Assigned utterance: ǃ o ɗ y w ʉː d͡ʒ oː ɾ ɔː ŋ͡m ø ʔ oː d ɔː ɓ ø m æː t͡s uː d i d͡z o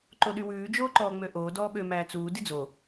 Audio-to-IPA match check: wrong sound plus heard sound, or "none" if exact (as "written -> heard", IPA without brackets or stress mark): ɾ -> ǃ